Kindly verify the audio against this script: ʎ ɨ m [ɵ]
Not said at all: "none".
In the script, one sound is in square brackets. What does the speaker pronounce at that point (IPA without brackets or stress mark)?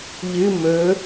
ɵ